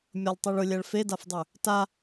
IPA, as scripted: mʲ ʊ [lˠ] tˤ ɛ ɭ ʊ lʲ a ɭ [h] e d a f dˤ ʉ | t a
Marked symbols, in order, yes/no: yes, no

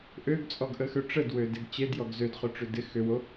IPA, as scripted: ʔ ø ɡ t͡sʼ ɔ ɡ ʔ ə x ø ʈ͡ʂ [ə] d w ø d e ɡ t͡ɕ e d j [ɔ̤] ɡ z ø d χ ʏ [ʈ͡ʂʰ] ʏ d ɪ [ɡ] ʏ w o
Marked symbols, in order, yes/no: yes, no, no, no

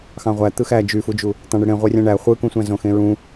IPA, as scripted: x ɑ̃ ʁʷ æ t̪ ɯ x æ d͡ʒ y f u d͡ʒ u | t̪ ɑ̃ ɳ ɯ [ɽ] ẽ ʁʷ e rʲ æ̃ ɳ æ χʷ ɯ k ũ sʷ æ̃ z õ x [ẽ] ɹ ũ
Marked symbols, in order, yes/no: yes, yes

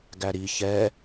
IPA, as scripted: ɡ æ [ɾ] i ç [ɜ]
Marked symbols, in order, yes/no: yes, no

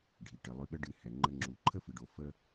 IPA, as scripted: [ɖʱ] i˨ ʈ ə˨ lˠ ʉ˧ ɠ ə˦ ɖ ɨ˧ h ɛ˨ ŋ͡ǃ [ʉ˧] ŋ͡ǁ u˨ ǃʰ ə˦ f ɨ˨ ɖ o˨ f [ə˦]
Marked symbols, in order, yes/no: yes, no, no

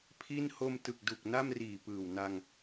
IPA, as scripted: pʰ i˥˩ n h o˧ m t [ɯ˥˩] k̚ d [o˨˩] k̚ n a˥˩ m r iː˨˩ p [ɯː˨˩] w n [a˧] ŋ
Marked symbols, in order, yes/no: no, no, yes, yes

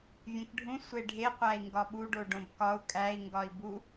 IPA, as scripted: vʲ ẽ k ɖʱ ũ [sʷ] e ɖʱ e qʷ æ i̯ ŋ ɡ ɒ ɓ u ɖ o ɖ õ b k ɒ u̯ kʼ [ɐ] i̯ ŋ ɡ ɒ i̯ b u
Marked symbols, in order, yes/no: yes, no

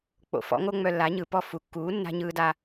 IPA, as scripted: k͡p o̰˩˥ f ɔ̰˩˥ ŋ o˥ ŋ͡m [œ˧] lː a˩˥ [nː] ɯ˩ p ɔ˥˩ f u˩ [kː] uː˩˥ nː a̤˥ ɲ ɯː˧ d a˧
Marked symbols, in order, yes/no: yes, no, yes

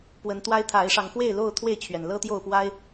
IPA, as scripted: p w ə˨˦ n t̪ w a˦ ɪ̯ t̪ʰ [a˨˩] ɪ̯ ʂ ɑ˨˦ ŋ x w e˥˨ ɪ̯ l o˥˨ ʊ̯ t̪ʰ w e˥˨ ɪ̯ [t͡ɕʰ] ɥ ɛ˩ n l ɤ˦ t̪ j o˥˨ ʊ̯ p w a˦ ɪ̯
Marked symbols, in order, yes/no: no, yes

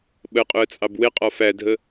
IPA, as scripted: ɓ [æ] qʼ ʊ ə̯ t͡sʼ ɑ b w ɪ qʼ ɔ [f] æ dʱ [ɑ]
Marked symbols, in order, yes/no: no, yes, no

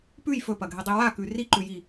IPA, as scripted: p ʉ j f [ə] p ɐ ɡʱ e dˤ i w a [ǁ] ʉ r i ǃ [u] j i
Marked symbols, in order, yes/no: no, no, no

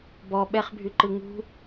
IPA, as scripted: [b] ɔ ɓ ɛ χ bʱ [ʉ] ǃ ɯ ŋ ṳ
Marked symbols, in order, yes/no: yes, yes

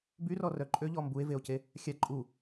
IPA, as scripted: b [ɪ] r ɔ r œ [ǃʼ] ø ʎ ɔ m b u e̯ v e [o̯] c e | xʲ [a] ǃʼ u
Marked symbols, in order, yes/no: no, yes, yes, yes

